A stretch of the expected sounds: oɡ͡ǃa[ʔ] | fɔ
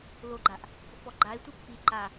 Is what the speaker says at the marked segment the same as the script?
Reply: yes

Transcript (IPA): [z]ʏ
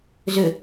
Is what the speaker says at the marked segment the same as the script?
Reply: yes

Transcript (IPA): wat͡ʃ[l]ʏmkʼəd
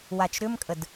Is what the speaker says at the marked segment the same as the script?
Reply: no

